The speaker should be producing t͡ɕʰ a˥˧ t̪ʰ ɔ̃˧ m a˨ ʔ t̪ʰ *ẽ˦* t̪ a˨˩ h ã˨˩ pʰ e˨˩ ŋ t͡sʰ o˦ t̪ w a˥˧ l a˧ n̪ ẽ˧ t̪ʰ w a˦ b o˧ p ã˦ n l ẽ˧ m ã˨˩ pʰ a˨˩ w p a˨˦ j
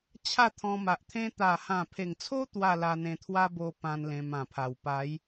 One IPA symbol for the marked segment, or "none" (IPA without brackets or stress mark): ẽ˦